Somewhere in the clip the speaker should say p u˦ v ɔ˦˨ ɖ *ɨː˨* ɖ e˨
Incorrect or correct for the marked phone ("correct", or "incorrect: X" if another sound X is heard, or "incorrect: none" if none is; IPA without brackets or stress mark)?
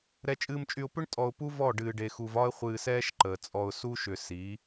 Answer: correct